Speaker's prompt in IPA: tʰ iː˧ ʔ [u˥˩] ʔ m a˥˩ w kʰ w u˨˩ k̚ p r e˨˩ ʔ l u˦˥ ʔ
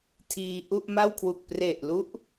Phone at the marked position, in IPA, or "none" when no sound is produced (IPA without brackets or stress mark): u˥˩